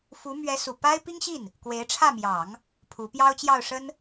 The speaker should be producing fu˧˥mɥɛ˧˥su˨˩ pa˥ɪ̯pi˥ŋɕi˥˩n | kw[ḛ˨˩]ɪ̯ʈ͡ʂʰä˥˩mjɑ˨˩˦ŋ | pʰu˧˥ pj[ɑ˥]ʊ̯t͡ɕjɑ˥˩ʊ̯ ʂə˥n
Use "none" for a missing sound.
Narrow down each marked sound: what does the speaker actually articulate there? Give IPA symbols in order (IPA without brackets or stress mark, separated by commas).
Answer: e˧˥, ɑ˥